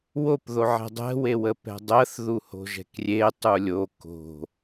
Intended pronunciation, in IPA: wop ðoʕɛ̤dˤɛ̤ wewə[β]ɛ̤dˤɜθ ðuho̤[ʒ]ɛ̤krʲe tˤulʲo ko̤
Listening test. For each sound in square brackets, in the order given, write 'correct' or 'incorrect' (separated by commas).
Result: incorrect, correct